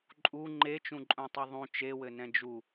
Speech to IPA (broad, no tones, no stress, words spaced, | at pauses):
ǃʼu ŋ͡ǃet͡ʃũǃʼũtˤu ðˤũ t͡ʃewɘ nɛ̃d͡ʒu